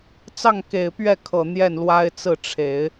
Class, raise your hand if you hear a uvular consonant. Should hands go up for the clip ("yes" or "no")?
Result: no